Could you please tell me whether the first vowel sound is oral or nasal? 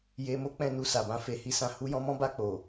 oral